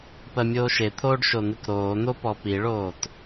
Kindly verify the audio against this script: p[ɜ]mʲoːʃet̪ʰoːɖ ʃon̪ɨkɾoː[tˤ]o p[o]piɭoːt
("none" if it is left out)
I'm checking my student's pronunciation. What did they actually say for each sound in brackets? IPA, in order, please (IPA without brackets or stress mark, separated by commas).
ɜ, n̪, ɔ